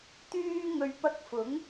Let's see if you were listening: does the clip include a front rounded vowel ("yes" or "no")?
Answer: yes